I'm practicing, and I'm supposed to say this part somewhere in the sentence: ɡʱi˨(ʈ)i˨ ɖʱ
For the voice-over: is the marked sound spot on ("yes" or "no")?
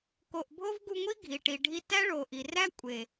yes